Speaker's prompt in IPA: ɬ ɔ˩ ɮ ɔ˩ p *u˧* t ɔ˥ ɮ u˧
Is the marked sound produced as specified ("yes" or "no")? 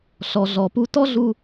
yes